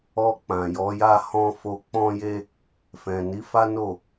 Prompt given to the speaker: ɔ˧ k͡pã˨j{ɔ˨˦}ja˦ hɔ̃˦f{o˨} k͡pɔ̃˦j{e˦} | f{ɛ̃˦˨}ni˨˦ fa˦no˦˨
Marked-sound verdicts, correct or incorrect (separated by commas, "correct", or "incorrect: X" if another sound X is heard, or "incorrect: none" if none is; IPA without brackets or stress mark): correct, incorrect: o˦, correct, incorrect: ɛ̃˨